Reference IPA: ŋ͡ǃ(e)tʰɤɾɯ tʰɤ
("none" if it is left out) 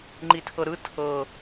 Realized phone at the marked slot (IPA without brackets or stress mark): i